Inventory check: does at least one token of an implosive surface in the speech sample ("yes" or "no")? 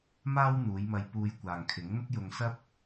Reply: no